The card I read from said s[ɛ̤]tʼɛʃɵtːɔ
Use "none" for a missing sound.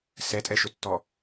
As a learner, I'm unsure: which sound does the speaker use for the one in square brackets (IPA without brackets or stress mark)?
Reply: ɛ